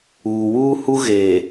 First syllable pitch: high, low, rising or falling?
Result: low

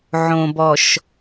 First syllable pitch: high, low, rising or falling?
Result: low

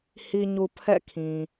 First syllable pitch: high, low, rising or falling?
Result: low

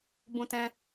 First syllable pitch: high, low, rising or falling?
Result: high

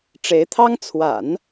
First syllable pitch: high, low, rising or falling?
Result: rising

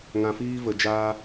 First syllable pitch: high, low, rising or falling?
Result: low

